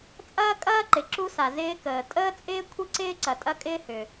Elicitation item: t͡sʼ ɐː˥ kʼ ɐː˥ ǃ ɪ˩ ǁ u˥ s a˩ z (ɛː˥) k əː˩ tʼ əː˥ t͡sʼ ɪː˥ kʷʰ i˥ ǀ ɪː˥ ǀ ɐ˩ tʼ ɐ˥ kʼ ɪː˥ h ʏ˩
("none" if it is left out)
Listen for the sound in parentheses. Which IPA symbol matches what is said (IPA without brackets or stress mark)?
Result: ɪː˥